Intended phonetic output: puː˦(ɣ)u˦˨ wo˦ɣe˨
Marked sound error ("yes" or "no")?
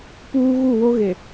no